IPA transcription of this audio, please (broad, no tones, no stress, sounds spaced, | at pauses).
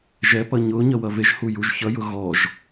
ʒ ɛ p ʌ ɲ ʊ ɲ ʌ w ʌ v e ʒ h u j u ʒ ç ʌ j ʊ ɣ ɔ ʒ